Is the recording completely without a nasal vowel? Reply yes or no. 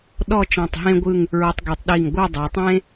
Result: no